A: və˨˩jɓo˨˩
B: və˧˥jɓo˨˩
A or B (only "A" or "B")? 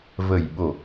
A